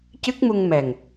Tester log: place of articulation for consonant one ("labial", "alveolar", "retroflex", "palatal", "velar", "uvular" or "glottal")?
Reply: palatal